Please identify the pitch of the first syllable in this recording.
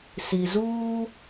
low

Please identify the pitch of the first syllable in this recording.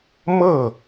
falling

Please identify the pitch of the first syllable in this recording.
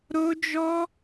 high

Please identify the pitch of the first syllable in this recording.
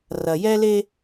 low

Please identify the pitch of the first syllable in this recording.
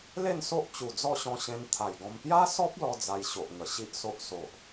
falling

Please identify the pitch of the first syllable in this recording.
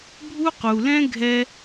high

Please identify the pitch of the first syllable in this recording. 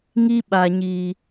high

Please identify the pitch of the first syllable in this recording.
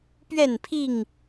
falling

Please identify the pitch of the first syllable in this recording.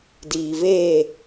low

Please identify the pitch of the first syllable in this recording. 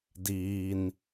low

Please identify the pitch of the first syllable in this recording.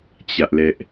high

